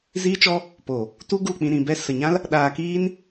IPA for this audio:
z iː˦ t͡ʃ ɔ˦ | p o˨ | t u˦ ɡ u˦˨ k͡p ĩ˧ ɾ ĩ˨ b ɛ˧ s ə˨ ɲ ã˦ l | ɗ aː˧ k iː˦ n

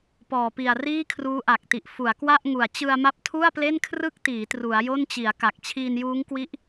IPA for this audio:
p ɔː˨˩ p i˨˩ a̯ r iː˥˩ kʰ r uː˦˥ ʔ a˨˩ k̚ t i˨˩ ʔ f u˩˦ a̯ k w a˥˩ ʔ ŋ u˨˩ a̯ t͡ɕ ɯ˧ a̯ m a˦˥ p̚ tʰ u˥˩ a̯ p l e˥˩ n kʰ r ɯ˥˩ k̚ t iː˩˦ t r u˩˦ a̯ j o˥˩ n t͡ɕ i˩˦ a̯ k a˨˩ k̚ t͡ɕʰ iː˧ n j uː˦˥ ŋ k w i˦˥ ʔ

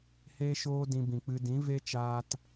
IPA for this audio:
h eː˦ ʃ oː˦ d ĩ˧ b ĩ˨ k͡p ɨ˧ d ĩ˨˦ v e˦ t͡ʃ aː˦ t

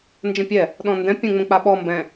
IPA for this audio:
n d͡ʒ ə̃ pʲ ɛ | ɗ ɔ̃ n d ɛ̃ pʲ ə̃ ŋ͡m ə̃ k͡p a ɓ ɔ m b ɛ̃

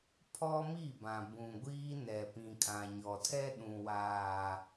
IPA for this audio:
pʰ ɔ˦ m i˦˨ b ã˨ b ũ˨ ɡʷ iː˦ n ɛ˨ p ĩ˨ kʼ ã˨ ɲ ɔ˨ tʰ ɛ˦ ɗ ũ˨ w aː˨

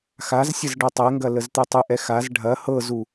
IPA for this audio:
x a z sʲ ə z ɖ ɤ tˤ ɛ ŋ ɡ ɐ l ə z t̪ ɨ tˤ ɨ ʔ ɛ x a z ɖʱ ɐ h ɤ z u

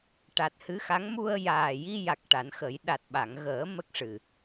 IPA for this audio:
ʈ a˨˩ t̚ h ɨ˧˥ x a˧˥ ŋ m u˧ ə̯ j aː˨˩ j i˧ j a˨˩ k̚ ʈ a˨˩˦ n x ə˨˩˦ j ɗ a˨˩ t̚ ɓ a˨˩˨ ŋ ɣ əː˨˩˦ m ə˦˥ k̚ ʂ ɨ˨˩

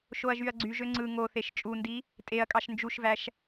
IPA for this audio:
ʃ o ɐ̯ ʒ y ɐ̯ ɡ͡ǀ y ʒ ø ŋ͡ǀ ɯ ŋ o θ e ʃ t͡ʃʼ u n d i | tʼ e ɐ̯ kʼ ɑ ʃ n d͡ʒ u ʃ v æ ʃ

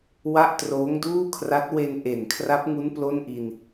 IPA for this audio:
w a˥˩ ʔ t r oː˦˥ ŋ d uː˥˩ kʰ r a˦˥ t̚ w e˧ n ʔ e˨˩ n kʰ r a˦˥ p̚ ŋ u˦˥ n p l o˥˩ n ʔ i˧ n

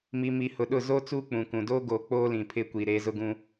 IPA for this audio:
m i˨ m i˨ h ʊ˨ ɗ ʊ˦˨ z o˦ t͡s uː˦ k͡p ũ˨ k ũ˨ d oː˦ ɡ oː˨ k͡p oː˦ l ĩ˨ pʰ ɪ˦ kʷ i˨ ɾ e˦ z ʊ˦ ɡ ũ˦

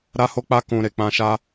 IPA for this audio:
ɾ a˦ h o˦ k͡p a˦ k ũ˧ ɾ e˨ k͡p ã˧ ʃ a˦

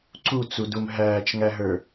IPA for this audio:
ǀ u t͡s u d u m ɦ æː t͡ʃ ŋ æ ɦ ə˞

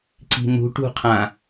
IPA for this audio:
ǀ i̤ n̪ ṳ ʈ ṳ qʰ ã

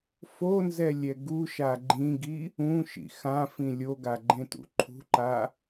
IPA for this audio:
f o n z ɛ lʲ ɛ ɡ u ʃ a ɡ͡ǃ ĩ ɡ i | ũ ʃ ḭ x ã f ĩ lʲ o ɡ a ɡ͡ǃ ẽ t ṵ ǃʰ ṳ ǃ a

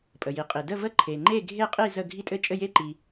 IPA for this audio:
pʼ ə˨ j i˨ qʼ i˨ d ə˥˧ v ə˥˧ ǃʰ e˨ ŋ͡ǃ e˥˧ ɡʱ e˥˧ qʼ i˥˧ z ə˥˧ ɡʱ i˥˧ tʼ ɘ˥˧ t͡ʃʼ ɘ˥˧ j e˥˧ ǃ i˨

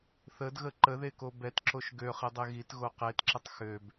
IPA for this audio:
θ ə d ɣ ə ǃ ə ð e k o b ɛ t ǁ o ʃ ɡ ø χ i dˤ e ɣ i t ɣ o q e t ǁ ə tˤ x ø b

